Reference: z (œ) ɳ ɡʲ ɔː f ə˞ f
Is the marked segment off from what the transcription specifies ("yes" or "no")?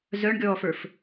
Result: no